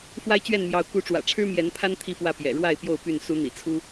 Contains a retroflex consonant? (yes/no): yes